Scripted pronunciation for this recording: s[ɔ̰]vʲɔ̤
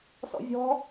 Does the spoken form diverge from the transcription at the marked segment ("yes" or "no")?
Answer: no